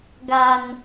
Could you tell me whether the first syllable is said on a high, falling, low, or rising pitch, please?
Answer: low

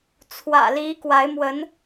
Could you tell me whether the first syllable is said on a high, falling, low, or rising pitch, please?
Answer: low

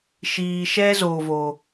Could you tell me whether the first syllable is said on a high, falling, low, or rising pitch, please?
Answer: low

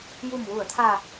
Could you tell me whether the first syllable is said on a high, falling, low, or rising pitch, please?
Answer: low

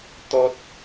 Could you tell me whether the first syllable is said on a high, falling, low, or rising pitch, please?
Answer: low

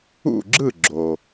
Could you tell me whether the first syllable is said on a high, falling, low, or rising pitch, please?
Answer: falling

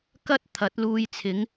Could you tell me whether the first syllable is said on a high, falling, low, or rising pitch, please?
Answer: high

